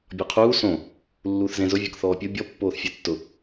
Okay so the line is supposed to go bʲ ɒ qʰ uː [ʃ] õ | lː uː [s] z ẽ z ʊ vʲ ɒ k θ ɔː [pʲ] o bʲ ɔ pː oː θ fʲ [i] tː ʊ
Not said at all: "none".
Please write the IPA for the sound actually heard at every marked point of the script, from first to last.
s, θ, pʲ, e

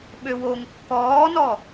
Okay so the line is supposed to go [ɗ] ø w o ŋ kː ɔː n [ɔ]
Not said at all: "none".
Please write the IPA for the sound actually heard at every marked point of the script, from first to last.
ɓ, ɔ

